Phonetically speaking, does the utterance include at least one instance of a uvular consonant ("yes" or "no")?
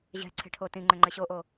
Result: no